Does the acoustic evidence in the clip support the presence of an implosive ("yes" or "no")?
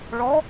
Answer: no